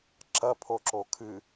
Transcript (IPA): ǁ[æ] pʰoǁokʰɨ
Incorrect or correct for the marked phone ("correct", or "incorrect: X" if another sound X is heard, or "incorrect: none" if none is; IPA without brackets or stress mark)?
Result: incorrect: ɐ